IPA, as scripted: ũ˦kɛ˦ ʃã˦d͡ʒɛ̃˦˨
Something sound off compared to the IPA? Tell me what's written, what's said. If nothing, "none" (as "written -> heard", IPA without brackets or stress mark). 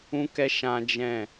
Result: none